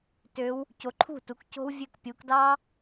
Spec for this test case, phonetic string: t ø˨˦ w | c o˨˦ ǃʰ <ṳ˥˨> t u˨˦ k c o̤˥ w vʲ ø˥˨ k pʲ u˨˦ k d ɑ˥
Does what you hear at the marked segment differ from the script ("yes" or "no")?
no